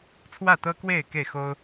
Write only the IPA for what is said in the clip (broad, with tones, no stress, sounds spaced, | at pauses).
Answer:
t͡sʰ w ä˥˨ t̪ ɤ˦ k w e˥˨ ɪ̯ k e˥˨ ɪ̯ x o˦ ʊ̯